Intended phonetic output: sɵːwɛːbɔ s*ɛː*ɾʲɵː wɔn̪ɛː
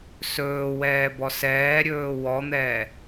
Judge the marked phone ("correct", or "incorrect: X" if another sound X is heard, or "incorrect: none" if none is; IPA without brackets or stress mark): correct